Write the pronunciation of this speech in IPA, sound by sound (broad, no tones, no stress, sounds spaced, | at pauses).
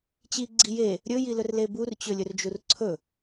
t͡ɕ i ɡ͡ǀ i j e | ɾʲ ɵ j i l ɵ r l e b u r t͡ɕ ɵ lʲ ɵ r d͡ʒ u r ǀʰ ɵ